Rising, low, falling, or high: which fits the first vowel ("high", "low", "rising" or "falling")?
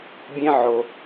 high